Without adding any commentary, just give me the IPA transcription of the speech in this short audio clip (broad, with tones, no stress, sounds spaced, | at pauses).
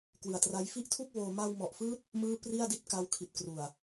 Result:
k w ɯ˨˩ a̯ t r a˦˥ j f i˥˩ ʔ tʰ u˥˩ k̚ w oː˧ m a˧ w m ɔ˨˩ ʔ f ɯː˦˥ t̚ | m ɯː˥˩ p r i˥˩ a̯ d i˥˩ t̚ k a˦˥ w kʰ i˨˩ t̚ k r u˨˩ a̯